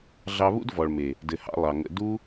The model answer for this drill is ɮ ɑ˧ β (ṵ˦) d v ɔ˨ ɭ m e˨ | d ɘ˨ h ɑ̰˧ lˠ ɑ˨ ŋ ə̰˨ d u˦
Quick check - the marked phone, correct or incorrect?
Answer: correct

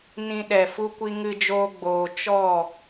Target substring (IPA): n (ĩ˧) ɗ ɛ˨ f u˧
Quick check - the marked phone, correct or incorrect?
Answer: correct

